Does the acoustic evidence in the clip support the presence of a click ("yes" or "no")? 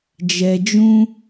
no